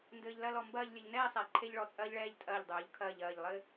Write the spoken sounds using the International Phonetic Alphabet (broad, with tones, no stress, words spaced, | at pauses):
ndɘː˧ʎlɐ˥˧lɔ˧ mbɐː˥˧ʎlʲɘ˧ʎ nɛː˥˧sˤɛ˩˧ ǃʰe˥ʎɭɔ˧˩t͡sʼɐː˥ʎɭɛː˥˧ʎ tʼɐː˧˩ʎdˤoː˩˧ʎkʰɐː˧˩ʎ ɐː˧˩ʎlˠɘ˥˧